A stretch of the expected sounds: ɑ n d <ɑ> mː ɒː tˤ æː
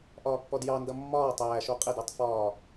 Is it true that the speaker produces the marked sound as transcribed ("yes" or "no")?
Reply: no